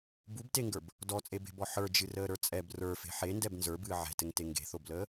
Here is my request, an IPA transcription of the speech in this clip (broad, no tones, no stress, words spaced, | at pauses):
bubteŋɡə˞b | dɔt͡sʼebe̤bɔ ħə˞d͡ʒɨrəːɾə˞ t͡sʼɛb rə˞fe̤ ħendɛb nzə˞bɨː ʕɛ̤tɘŋte ŋɡe̤θobləː